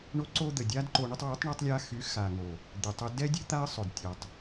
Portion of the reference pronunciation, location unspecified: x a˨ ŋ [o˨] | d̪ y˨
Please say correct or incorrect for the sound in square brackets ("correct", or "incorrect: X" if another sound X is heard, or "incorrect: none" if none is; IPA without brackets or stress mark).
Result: correct